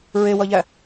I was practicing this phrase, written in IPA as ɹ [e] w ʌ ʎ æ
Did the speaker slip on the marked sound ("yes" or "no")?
no